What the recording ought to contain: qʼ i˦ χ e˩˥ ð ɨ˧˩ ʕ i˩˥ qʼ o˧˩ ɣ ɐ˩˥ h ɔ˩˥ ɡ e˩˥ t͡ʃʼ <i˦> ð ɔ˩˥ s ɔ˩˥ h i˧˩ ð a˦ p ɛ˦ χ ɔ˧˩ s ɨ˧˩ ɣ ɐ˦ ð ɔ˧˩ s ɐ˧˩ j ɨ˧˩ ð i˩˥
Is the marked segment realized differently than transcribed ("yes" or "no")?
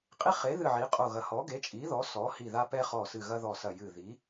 yes